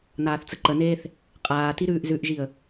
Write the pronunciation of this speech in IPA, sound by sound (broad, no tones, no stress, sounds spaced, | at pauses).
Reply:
n aː θ t͡s ə ǃ ə n eː θ | qʼ aː t i ɾ ʉː ʔ z ʉ ʔ ʒ i ə̯